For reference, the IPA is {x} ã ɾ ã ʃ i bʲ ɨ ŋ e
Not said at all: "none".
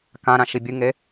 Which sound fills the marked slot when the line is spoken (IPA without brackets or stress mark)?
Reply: k